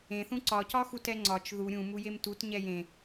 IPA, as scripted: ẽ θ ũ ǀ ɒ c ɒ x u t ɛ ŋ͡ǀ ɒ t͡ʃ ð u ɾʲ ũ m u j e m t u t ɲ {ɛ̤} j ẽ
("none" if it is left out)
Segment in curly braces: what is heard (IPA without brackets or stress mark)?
ɛ